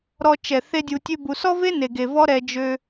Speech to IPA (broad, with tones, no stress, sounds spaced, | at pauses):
ɾ ɔ˧ t͡ʃ ɛ˨ θ e˦ dʲ u˧ tʲ ø˦ b u˧ s ɔ˦ v e˦ n e˨ ɡ e˨ v ɔ˦ ɾ ɛ˧ d͡ʒ ø˧